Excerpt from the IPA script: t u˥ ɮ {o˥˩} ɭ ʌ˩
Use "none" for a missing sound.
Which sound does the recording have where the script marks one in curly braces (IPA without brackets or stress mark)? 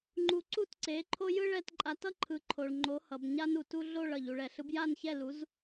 o˥˩